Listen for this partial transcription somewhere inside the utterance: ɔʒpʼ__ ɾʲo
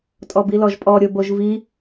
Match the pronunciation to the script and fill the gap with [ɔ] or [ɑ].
ɔ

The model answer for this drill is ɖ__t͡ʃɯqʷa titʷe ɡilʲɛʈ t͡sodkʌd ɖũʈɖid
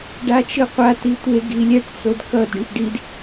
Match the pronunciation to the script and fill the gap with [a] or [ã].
a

